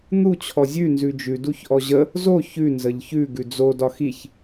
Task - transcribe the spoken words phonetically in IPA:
n̪ u t͡ɕʰ ɔ zʲ ʉ n z ʉ d͡ʒ ʉ d u ç ʔ ɔ ʑ ə | z o ç ʉ n z ə ʎ ç ʉ ɡ ʉ d͡z o d ɒ x i ç

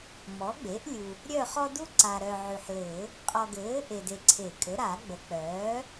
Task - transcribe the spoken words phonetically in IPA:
m ɔ˩˥ ɡ͡b e˩˥ ʔ lʲ u˨ | ɾʲ œ˦˨ χ ɔ˦ d u˦ ǀ a˨ ɾ œ˨ ʕ y˨ ħ l ɘː˨˩˦ | qʼ ɔ˨ ɡ ɘː˩˥ ʔ e˨ d e˨ ǀʰ e˨˩˦ kʼ ɘ˩˥ ɾ a˨˩˦ ɡ͡b ə˩˥ k͡p œː˩˥

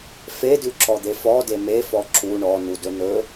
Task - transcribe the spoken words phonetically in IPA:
f e d ʉ ǁ ɔ d̪ e f ɔ d e m e f ɔ ǁ u ɳ ɔ n u d ɵ n ɵ

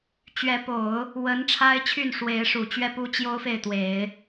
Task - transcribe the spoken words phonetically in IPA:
t͡ɕ ɥ ɛ˧˥ p o˨˩˦ ʊ̯ | w ə˧˥ n ʈ͡ʂʰ a˥ ɪ̯ t͡ɕʰ y˥˩ n ʂ w e˧˥ ɪ̯ ʂ u˨˩ t͡ɕ ɥ ɛ˥˩ p u˥ t͡ɕ j o˥ ʊ̯ f e˥˩ ɪ̯ t̪ w e˨˩˦ ɪ̯

